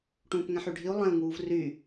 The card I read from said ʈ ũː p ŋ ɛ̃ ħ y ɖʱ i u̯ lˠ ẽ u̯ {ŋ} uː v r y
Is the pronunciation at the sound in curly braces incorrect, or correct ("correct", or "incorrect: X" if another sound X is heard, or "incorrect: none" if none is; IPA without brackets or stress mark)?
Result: correct